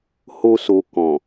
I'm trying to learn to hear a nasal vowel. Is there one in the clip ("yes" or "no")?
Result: yes